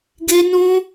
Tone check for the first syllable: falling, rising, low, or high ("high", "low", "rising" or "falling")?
high